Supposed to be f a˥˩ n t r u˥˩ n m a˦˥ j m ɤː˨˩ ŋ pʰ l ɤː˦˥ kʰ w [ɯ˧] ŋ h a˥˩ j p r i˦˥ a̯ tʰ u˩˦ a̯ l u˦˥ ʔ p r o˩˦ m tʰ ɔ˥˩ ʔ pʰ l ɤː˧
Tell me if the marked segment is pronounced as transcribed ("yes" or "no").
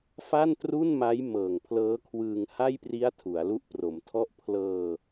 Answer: no